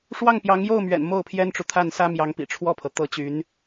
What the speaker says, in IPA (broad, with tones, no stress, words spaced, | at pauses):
ʂwɑ˥˩ŋpjɑ˧˥ŋ jo˥˩ʊ̯mɥɛ̰˨˩n mo˥˩ʊ̯pʰjɛ˥nʈ͡ʂu˨ t̪ʰa˥˩nsä˥ mjɑ˧˥ŋpḭ˨˩ʈ͡ʂʰwɔ˥˩pʰɤ˩ t̪ɤ˧˥t͡ɕy˧˥n